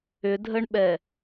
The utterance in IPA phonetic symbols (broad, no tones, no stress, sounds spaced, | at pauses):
ʏ dʱ ə ɳ ɓ ɛ